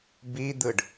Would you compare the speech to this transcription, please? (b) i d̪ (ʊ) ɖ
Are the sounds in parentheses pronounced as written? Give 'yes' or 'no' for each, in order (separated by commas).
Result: yes, no